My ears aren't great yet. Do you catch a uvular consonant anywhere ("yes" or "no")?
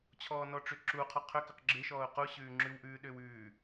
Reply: yes